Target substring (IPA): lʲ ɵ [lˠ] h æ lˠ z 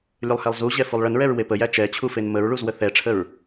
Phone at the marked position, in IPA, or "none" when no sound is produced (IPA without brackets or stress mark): lˠ